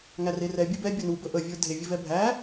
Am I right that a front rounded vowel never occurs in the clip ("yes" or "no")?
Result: yes